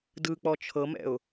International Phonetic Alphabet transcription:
d ɯ k͡p ɔ t͡ʃʰ ɤ m ɛ̰ ʊ̯

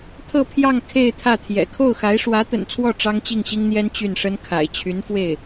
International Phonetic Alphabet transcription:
t̪ʰ ɤ˥˧ pʰ j ɑ˥˧ ŋ kʰ e˥˧ ɪ̯ t̪ʰ ä˥˩ t̪ʰ j ɛ̰˨˩ kʰ o˥˩ ʊ̯ x a˧˥ ɪ̯ ʂ w ä˧˥ t̪ ə̰˨˩ n t͡sʰ w ɔ˥˩ ʈ͡ʂ ɑ˥ ŋ t͡ɕ i˥˩ ŋ ɕ i˥ ŋ n̪ j ɛ˥ n t͡ɕ y˥˩ n ʂ ə˥ n kʰ a̰˨˩ ɪ̯ t͡ɕʰ y˧˥ n f w e˥˩ ɪ̯

